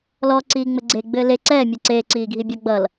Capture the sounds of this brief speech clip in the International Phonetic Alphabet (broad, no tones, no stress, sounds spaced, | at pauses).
l ɔ ǀ iː ŋ͡m ɘ ɡ͡ǀ e ɡ͡b ɘː l e ǀ ɛː mʲ ɛ ǀ eː ǀ iː ɡʱ i bʲ ʌ ɡ͡b ʌ l